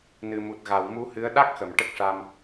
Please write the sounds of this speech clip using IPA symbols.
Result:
n ɨ˨˩ m u˨˩ t̚ ɣ a˨˩˨ w m u˧˥ h ɨ˧˥ ə̯ ɗ a˦˥ k̚ x ə˨˩˨ m ʈ ə˦˥ k̚ ʂ a˧ m

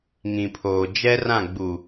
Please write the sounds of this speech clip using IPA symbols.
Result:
ŋ ĩ˨ pʰ oː˨ d͡ʒ ɛ˦ r ã˦˨ ɡ͡b u˨

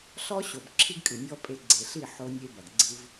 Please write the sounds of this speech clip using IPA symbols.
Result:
ɬ ɔ˦ ɕ o˨ b ǁʰ i˦ ɡ kʼ ɨ˨ nʲ ɔ˦ pʼ e˨˦ ɡ͡ǀ e˨ ɬ i˦˨ ħ o˦ nʲ e˦ b ɐ˨ ɡ ɡ͡ǀ ɨ˦ v

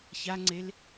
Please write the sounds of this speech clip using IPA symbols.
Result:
ç a ŋ͡ǀ e l

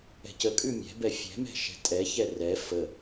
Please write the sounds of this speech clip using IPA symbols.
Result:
ɛ̤ c ə kʼ ʉ mʲ ɛ̤ b ɛ fʲ ɛ̤ m ɛ̤ ʃ ɛ̤ tʼ ɛ ç ɛ r ɛ f ə

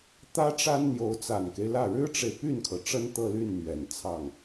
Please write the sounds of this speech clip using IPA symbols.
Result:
t̪ ä˥ ʈ͡ʂ a˥ n n̪ j o˧˥ ʊ̯ t͡s a˨˩ n k e˦ ɪ̯ l ä˥˩ ɻ ɻ̩˥ ʈ͡ʂ e˨ ɪ̯ p y˥˩ n kʰ ɤ˩ ʈ͡ʂ ə˥ n t̪ ɤ˥˧ l y˥˩ n n̪ ɥ ɛ˨˩ n t͡sʰ ɑ˥˩ ŋ

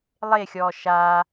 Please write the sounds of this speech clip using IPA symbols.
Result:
lˠ e xʲ ɔː ʃ a

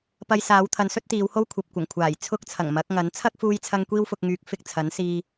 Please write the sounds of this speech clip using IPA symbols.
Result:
p ɐ˧ j s aː˨˧ w t̪ʰ ɐ˨˧ n s ɵ˥ t̚ t̪ iː˨˧ w h o˥ w kʷʰ ɐ˨ p̚ kʷ ɐ˨˩ ŋ kʷʰ aː˨˩ j t͡sʰ ʊ˥ k̚ t͡sʰ ɐ˨˩ ŋ m ɐ˨˥ k̚ ŋ ɐ˨˥ n t͡sʰ ɐ˥ k̚ f uː˧ j t͡sʰ ɐ˧ ŋ kʷ iː˥ w f ʊ˧ k̚ ŋ yː˨˥ k̚ f ɪ˨ k̚ t͡sʰ ɐ˨˥ n s iː˧

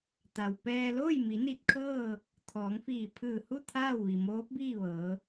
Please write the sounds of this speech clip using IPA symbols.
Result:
t̪ a˩ w p ɛː˧ l oː˥˨ j m i˩˧ n i˧ t̚ kʰ ɤː˥˨ | t̪ʰ ɔː˩˧ ŋ f iː˧˩ pʰ ɯː˧˩ h u˥˨ t̪ʰ aː˥˨ w ʋ i˩ m oː˧˥ p̚ b iː˥˨ ʋ ɤː˩˧

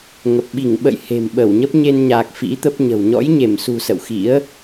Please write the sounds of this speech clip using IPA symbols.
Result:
ŋ ə˨˩ p̚ ɓ i˧˩ ŋ ɓ ə̰˧˨ j h e̤˨˩ m ɓ ə˧˩ w ɲ ə˦˥ p̚ ɲ e˧ n ɲ a˨˩ k̚ f ḭ˧˥ t̪ ə˦˥ p̚ ɲ ə̤˨˩ w ɲ ɔ̰˧˥ j ɲ e˧˩ m s ṳ˨˩ s ə̰˧˨ w x ḭ˧˥ ə̯

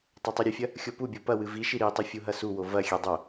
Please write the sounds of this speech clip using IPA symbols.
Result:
tˤ a tˤ o ɾʲ ɨ fʲ ɐ | xʲ o p u bʲ o p ɐ w ɨ v i ʃ i ɾ i tˤ ɘ fʲ u ɦ ɐ s u w o v ɐ xʲ ɛ dˤ o

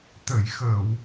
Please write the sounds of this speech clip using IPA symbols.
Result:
t̪ ə˨˩˨ j x əː˨˩˨ w

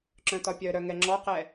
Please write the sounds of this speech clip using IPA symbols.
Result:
ǁ œ̃ t ɒ pʲ œ ɾ œ ŋ ɛ ŋ͡ǁ ɔ q ɛ

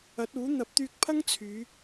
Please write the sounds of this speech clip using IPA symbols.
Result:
ɐ˨˥ t̚ uː˨˥ n̪ ɐ˨˥ p̚ t̪ yː˧ k̚ pʰ ɐ˥ ŋ t͡sʰ yː˨˧

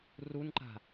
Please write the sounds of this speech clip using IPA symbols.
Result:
r u n ǃ a̤

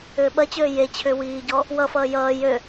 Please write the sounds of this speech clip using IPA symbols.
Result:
ʏː ɓ ɐ t͡ɕ øː j e t͡ɕʰ ʏː w iː ɟ ɔ | w ʌ f ʌː j ʌː j ø

